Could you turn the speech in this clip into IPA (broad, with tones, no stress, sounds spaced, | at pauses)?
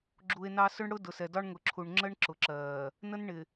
ɡ͡ǁ u˨ e̯ n ɑ˦ s ʊ˦ ɳ ɽ ʊ˦ d ʊ˨ s ɛ˨ d ɒ˦ ɳ ŋ ʊ˨ ǁʰ u˨ ɳ ŋ͡ǁ ə˦ ɳ ǁ ʊ˨ ǁ ɜː˨ | n ə˦ n ɳ ɪ˨